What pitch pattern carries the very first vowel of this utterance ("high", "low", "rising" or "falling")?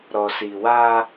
low